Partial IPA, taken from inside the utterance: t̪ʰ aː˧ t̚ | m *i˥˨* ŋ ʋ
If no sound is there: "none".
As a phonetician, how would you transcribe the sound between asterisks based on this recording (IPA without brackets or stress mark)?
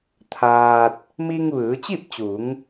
i˧